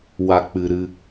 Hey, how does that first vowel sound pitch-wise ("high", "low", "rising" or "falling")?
low